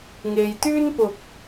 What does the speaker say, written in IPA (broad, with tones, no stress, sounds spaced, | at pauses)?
ŋ e˨ j t̪ yː˥ n p ʊ˨˥ k̚